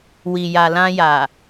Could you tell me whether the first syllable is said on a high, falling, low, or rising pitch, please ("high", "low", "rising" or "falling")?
low